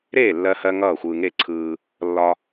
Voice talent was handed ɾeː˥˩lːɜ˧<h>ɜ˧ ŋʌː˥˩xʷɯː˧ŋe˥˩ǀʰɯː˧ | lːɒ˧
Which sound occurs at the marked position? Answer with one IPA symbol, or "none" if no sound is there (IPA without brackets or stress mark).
h